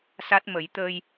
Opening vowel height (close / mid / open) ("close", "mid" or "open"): open